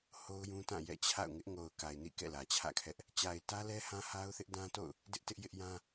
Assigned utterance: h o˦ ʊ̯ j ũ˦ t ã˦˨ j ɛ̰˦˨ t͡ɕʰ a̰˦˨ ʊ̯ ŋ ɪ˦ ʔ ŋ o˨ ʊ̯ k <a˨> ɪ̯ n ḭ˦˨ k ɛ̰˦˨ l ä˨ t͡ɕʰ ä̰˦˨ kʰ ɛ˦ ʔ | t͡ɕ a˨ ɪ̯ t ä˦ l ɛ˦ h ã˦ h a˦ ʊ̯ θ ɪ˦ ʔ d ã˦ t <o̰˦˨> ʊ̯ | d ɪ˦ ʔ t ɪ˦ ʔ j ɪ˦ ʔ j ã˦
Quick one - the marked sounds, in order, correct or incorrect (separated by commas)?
correct, correct